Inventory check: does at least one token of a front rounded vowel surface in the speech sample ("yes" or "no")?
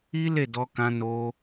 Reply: no